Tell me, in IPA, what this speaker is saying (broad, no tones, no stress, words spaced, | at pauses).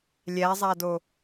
lʲæzˤado